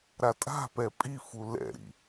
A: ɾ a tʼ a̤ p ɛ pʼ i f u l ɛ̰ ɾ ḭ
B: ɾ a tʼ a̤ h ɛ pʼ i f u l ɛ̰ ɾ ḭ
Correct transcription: A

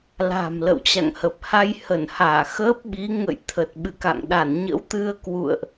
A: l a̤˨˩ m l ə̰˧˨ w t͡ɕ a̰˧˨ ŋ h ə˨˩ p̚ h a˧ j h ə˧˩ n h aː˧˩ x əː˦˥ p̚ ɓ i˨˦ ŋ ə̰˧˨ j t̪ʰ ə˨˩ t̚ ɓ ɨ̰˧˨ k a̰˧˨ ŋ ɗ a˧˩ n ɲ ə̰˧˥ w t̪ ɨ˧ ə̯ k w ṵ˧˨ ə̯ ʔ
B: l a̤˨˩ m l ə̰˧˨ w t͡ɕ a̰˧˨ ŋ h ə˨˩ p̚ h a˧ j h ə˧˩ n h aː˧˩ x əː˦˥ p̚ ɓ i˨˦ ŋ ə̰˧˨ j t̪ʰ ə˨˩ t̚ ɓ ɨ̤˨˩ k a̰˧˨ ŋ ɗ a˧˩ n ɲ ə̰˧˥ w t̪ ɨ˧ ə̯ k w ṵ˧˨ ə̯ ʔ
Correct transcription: A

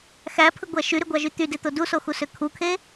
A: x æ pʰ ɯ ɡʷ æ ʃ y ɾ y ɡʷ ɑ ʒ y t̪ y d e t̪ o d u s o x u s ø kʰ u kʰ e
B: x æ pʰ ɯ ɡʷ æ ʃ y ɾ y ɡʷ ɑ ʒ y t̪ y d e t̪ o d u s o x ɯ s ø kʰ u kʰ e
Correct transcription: A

